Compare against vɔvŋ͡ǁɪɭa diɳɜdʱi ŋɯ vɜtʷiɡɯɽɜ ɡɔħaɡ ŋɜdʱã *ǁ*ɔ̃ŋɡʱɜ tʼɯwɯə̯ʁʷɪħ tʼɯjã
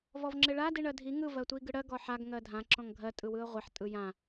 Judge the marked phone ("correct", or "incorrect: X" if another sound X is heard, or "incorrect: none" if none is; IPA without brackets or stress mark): correct